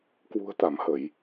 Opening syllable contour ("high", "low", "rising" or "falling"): low